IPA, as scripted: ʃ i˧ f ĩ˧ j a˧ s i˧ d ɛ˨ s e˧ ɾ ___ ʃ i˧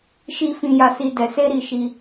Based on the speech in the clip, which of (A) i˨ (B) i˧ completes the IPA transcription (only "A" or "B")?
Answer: A